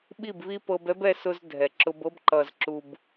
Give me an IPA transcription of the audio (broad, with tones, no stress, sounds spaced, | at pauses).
ɓ i˦˨ b β i˦ p ɤ˧ b ɛ˦ b ɛ˧ s ʊ˧ z dʱ ɛ˨ ǁ ʊ˧ b ɤ˦ b ǃ ʌ˨ z ǁ u˨ b